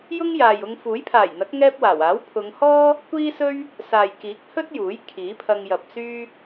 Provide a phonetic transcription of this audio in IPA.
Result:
j ʊ˥ ŋ j aː˨ j ʊ˧ ŋ f uː˨˥ j pʰ aː˨˩ j n̪ ɐ˨˥ k̚ ŋ ɛː˥ p̚ w aː˨˩ w aː˨˥ w pʰ ʊ˨˧ ŋ h ɔː˥ | kʷ iː˥ s ɵ˥ ɥ | s aː˨ j k iː˨˥ k̚ h ɵ˥ t̚ j uː˨˥ j kʰ iː˨˥ pʰ ɐ˧ ŋ j ɐ˨ p̚ s yː˥

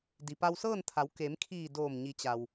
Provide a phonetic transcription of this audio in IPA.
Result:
d i˩ p a˧ w s ɤː˥˨ n t̪ʰ a˩˧ w k e˩˧ m kʰ iː˧˩ d oː˧˩ m ɲ i˩˧ t͡ɕ a˩ w

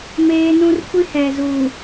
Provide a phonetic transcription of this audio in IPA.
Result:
m eː˦ n ũ˦ r kʷ i˦ h ɛ˨ z uː˨

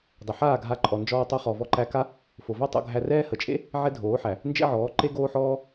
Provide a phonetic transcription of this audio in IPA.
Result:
dˤ ə˨ ħ aː˦˨ ɡʱ a˧ ǃʼ ɔ˨ n d͡ʒ ɔː˧ tˤ o˧ χ ɔ˨ v ɔ˧ ǃ æ˧ k a˦ | f o˨ v æ˦ tˤ o̰˧ ɡʱ æ˧ r ɛː˦ h ə˨ t͡ʃʼ ḛ˦ | ʕ ɛ˦ dʱ oː˨˦ ħ æ˨ | n d͡ʒ ḛ˦ ʕ ɔː˨˦ ǃ e˦ ɡ oː˦ ħ ɔː˦

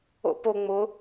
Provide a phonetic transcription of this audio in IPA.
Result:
o̰ p o ŋ͡m ʊ

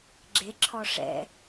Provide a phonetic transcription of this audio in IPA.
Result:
ɡ͡ǁ e ǁʰ ɔ ʂ ɛ̰

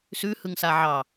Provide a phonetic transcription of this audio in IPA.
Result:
s ʉ h ɯ ŋ s a ʕ ɑ

